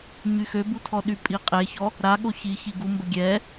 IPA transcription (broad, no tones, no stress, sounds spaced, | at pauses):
ɲ y x ø b u tʰ ɔ ɗ y pʼ i qʼ e ç ɔ | ɾ a ɠ o ç i ç i ɡ u m b ə ɡʲ ɛ